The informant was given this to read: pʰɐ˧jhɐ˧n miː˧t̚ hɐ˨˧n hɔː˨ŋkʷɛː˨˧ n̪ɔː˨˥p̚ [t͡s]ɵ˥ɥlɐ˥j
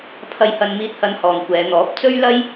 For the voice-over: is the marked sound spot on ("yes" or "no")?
yes